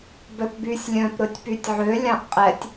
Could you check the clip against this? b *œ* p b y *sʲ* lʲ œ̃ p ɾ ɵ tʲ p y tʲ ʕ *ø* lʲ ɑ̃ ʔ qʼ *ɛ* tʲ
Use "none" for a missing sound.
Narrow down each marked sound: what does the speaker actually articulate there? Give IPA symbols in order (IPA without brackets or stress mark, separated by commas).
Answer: œ, sʲ, ø, ɛ